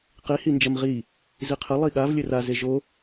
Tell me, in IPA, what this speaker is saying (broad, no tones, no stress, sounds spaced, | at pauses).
q i h i n d͡ʒ ɐ m ʁ i | z i qʰ ɘ lˠ i ɠ a v lʲ ɘ r a z e ʒ o